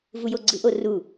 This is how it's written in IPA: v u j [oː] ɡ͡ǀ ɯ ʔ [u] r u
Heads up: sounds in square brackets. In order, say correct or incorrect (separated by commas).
incorrect, incorrect